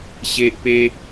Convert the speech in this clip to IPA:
ɕ e˦ ʔ p e˦

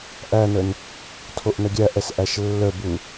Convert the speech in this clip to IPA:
ʔ æ n ə n | tʰ o ʔ n ə ɡʲ æ ʔ ɛ s ʔ æ ʃ lː ə b u

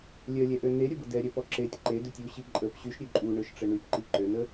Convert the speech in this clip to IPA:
lʲ œ lʲ ɛ ʔ ø n e ɾʲ ə b ə d ɛ ɾʲ œ p ɔ ǁ e tʲ ǃ e d ø tʲ u ɕ i ǃʼ ə p ɕ y ʃ ɾʲ ø ǃʼ u ɳ ø ʃ ʈ͡ʂ ə ɳ y p ǃ i ǃ ø n ə

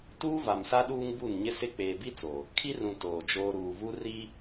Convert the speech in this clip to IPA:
t uː˦ v a˨ m s a˦ ɗ uː˦ ŋ b u˦˨ n ɲ ɪ˦ s ɪ˦ k͡p eː˨ b i˦ t͡s o˨ | kʰ i˦ r ũ˨ t oː˨ d͡ʒ oː˦ ɾ uː˨ v u˦ r i˦

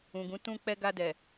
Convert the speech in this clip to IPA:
ũ˨ ɡ ũ˨˦ t ũ˧ k͡p ɛ˧ ɡ a˧ d ɛ˨

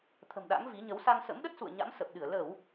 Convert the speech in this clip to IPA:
t̪ʰ ə̤˨˩ m ɗ a̰˧˥ ŋ v i˨˦ ɲ ə˨˦ w s a˧ ŋ s ə̰˧˥ m ɗ ə˦˥ t̚ s ṵ˧˨ ə̯ ɲ a̰˧˥ m s ə˨˩ p̚ ɗ ɨ˧˩ ə̯ l ə˧˩˨ w

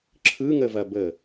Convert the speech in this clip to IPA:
ǁʰ ɯ ŋ ə v ɐ b ə

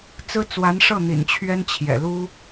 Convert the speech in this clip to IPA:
t͡s ɹ̩˥ t͡s w a˧˥ n ʂ ɤ˥˩ n̪ ḭ˨˩ n t͡ɕʰ ɥ ɛ˥ n t͡ɕʰ j ɛ̰˨˩ l u˥

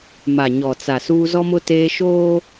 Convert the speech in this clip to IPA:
m a˨ ɲ ɔ˨ t͡s a˨ s uː˦ z ɔ˦ m ʊ˦ t eː˦ ʃ oː˦

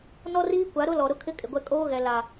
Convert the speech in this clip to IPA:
n ɔ˦ r iː˦ kʷ a˨˦ ɾ ʊ˦ l ɔ˨ ɾ ʊ˦ kʰ ɪ˦ kʼ ɪ˨ ɡʷ ɛ˦ kʼ oː˦ ɣ ɛ˨ l a˨

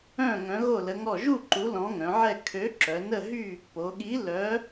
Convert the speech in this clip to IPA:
œ̃˥˨ ŋ œ̃˨˥ ɣ o˥˨ l ə˨˥ ŋ ɔ˥˨ ʒ u˥˨ ǃ u˨˥ l ɔ̃˨˥ ŋ œ̃˩˧ ʕ ɛ˥˨ kʰ ø˨˥ ǁ œ˩˧ n ə˥˨ ɦ y˥˨ | p o˩˧ ɠ i˨˥ l œ˨˥

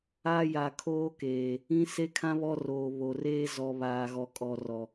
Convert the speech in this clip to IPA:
a˦ j a˨ kʰ oː˦ k eː˨ | ĩ˦ s e˦ kʰ ã˦ β ɔ˦ r oː˨ β o˨ r eː˦ z ɔ˨ β aː˨ ɣ ɔ˨ kʼ ɔ˨ r ɔ˨

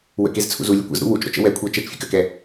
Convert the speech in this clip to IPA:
w ə̰ k e z t͡sʰ ṵ z u lʲ ə kʷ ə̰ z ɾ ṵ w u t͡ʃ ɾ ɔ̰ t͡ʃ ə̰ w ɛ kʷʰ ɤ t͡ʃ ɛ t͡ʃ fʲ ə̰ k ə k ɛ

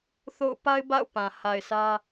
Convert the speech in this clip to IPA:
θ o̰˦˨ ʊ̯ p a˦ ɪ̯ b a̰˦˨ ʊ̯ p ã˨ h a˨ ɪ̯ s ä˦

